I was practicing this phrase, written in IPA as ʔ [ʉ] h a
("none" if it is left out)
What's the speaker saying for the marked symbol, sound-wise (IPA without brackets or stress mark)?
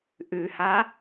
ʉ